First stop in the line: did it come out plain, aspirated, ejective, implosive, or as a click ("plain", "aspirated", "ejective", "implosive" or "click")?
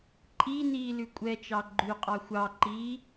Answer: click